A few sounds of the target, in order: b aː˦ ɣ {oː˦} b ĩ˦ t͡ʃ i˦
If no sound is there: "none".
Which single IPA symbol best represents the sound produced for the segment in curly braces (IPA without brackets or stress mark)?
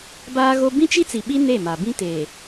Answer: o˦